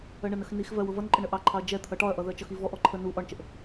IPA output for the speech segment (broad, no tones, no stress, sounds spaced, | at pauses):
ɜ ɳ ə n ə x n i x v ɜ w ʊ v ʌ n ǃʼ ə ɳ ə ʔ ɑ ǃʰ ɑ ɐ̯ d͡ʒ ɛ t̪ʰ ʌ ʈ ɒ ɐ̯ ʔ ʌ ð ɜ t͡ʃ ʌ x i v ɔ ʔ ɔ ǃʰ ə n u ʔ ɒ ɳ t͡ʃ ə ʔ